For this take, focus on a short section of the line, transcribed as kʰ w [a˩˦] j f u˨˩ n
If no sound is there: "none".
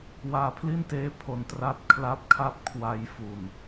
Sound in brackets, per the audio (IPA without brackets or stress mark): a˧